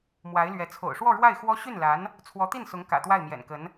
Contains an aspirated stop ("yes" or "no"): yes